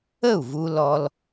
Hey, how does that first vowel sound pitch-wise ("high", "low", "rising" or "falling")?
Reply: falling